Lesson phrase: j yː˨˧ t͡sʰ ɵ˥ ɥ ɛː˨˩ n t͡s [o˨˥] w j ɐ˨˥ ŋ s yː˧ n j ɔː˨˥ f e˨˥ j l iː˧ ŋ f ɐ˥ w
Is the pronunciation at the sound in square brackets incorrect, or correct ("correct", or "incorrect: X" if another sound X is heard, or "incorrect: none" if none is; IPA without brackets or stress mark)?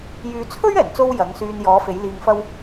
incorrect: o˥